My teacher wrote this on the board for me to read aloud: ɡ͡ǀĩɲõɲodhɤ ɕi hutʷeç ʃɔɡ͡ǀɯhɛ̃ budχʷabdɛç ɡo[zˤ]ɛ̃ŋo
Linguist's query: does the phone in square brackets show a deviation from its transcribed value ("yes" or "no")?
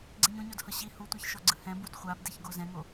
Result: yes